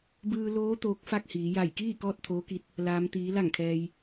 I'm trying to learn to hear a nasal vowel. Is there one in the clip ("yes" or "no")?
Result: no